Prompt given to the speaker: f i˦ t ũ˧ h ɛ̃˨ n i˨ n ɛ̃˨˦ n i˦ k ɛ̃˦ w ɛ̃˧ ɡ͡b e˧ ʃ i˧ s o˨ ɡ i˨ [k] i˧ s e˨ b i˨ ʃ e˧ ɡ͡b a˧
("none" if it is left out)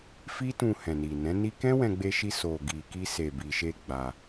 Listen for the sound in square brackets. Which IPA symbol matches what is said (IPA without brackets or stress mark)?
k